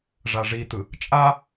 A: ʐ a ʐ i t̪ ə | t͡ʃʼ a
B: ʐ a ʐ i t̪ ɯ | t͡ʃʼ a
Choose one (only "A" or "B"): B